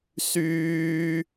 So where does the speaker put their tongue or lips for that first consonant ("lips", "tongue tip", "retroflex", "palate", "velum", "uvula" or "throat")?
tongue tip